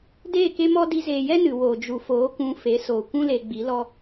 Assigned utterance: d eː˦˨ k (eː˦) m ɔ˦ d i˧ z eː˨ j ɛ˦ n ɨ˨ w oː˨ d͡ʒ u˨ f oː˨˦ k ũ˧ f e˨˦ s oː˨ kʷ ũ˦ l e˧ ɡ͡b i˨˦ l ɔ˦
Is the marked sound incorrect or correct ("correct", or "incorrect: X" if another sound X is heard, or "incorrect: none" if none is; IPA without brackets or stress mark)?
incorrect: e˦